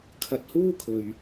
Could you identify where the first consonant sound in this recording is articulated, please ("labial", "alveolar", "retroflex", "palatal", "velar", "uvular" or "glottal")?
velar